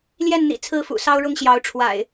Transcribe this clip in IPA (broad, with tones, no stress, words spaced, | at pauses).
ljɛ˥˨nn̪ḭ˨˩ t͡sʰɹ̩˥˨fṵ˨˩ sɑ˦ʊ̯ɻʊ˦ŋɕjɑ˨˦ʊ̯ ʈ͡ʂʰwa̰˨˩ɪ̯